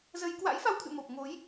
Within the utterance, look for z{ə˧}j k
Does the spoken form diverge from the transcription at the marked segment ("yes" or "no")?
no